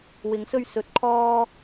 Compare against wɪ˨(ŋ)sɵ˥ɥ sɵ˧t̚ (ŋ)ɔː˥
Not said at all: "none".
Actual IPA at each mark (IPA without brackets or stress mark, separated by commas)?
ŋ, kʰ